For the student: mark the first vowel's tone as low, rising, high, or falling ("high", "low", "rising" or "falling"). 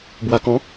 low